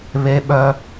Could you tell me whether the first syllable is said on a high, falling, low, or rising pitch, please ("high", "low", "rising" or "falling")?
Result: high